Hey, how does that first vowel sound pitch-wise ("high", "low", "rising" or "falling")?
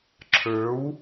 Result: rising